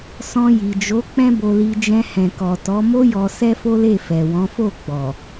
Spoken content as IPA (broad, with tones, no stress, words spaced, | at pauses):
sɔ̃˧ji˨d͡ʒo˨˦ k͡pɛ̃˦bo˧li˧ d͡ʒɛ̃˧hɛ̃˨kɔ˨tɔ˨˦ mo˦jɔ˧ sɛ˦fo˦ le˦˨ fɛ˨wɔ̃˨˦fo˦˨ ɡ͡bɔ˨